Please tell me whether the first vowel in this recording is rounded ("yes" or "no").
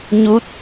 yes